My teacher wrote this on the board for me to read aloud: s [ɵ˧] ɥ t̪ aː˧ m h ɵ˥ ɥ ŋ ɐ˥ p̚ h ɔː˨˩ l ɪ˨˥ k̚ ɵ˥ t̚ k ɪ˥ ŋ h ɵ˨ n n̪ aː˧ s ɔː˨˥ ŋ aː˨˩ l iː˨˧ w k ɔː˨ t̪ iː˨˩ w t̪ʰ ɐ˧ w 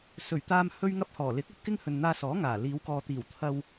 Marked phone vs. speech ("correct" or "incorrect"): incorrect